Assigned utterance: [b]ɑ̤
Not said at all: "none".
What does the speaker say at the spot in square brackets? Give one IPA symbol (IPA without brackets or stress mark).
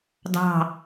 d